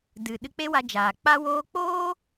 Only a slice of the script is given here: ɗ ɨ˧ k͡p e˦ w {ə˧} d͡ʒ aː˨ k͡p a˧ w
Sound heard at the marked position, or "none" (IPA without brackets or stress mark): a˧